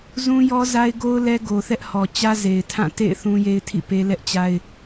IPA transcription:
zũ˦jɔ˦za˦ɪ̯ɡo˦ʊ̯ lɛ˦ɡo˨θɛ˦ʔ hɔ˨t͡ɕä˦ze˨ɪ̯ tʰã˦˨tḛ˦˨ɪ̯ θũ˦je˦ɪ̯ tʰḭ˦˨pe˦ lɛ˦ʔt͡ɕa˦ɪ̯

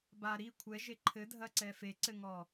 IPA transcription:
ba ɾi kʷʰɛʒe ǃʰɘdʱɐǀɛ feǀɘŋɔ

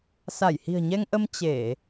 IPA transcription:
sa˧˩jhi̤˨˩ə̯ɲɛ˧ŋʔə˧m t͡ɕe˧˩˨

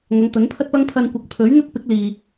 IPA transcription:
ŋɐ˨˧ŋt̪ɐ˨˥npʰɐ˥t̚pɐ˥ŋ pʰɐ˧nkʷɐ˨˥k̚pʰɵ˨˥ɥn̪ɐ˥t̚ pɪ˨˥k̚liː˨

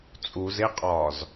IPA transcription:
t͡sʼuzeqʼɒːz

